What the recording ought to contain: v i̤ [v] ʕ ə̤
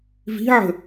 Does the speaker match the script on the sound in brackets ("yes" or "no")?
no